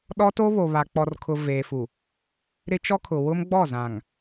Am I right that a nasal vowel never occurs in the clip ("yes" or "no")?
no